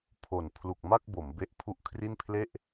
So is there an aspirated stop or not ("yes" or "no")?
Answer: yes